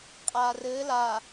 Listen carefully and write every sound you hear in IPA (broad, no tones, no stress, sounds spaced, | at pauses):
qʼ aː r ɘː l a